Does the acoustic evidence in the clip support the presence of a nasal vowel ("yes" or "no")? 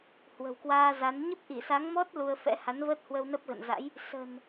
no